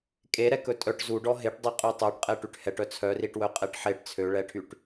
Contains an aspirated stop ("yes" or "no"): yes